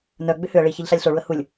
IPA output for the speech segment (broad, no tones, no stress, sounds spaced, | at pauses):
n œ ɡ͡b ʏ h ʏ ə̯ ɭ i ç ɛ ʎ ɬ a lʲ ɬ o ɭ u ə̯ h u lʲ